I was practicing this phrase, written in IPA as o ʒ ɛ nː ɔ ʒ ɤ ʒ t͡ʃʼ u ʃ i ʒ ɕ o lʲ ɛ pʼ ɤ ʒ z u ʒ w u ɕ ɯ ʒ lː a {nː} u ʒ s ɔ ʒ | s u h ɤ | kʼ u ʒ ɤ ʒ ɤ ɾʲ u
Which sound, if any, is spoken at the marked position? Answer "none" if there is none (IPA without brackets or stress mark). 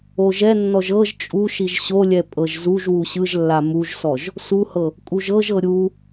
m